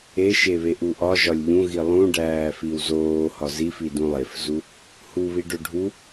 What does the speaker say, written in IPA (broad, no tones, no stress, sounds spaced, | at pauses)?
e ʃ e β e ʔ u ʔ ɒ ʒ ɒ lʲ ʎ ũ ɣ i lˠ ũ ɖ æː f i w z oː h ɒ z i f i d ũ lˠ e f z u | h u β i ɖ o ɖʱ u